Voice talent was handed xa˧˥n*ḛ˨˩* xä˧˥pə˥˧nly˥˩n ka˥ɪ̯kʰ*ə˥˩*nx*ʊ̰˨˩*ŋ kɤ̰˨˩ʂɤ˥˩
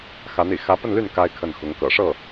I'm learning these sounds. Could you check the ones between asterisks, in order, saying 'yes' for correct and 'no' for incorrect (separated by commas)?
no, yes, no